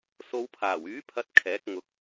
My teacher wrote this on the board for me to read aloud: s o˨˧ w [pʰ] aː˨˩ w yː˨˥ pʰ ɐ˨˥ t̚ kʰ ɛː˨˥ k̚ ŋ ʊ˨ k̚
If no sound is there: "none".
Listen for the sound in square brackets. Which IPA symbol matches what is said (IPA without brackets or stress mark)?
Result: pʰ